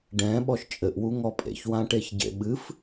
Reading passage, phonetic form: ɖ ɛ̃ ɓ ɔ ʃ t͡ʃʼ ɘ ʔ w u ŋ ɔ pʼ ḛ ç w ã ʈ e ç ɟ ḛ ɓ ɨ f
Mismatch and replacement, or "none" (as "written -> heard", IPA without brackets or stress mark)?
none